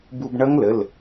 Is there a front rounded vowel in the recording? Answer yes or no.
no